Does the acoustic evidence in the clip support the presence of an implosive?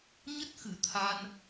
no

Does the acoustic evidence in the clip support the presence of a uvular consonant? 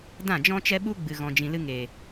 no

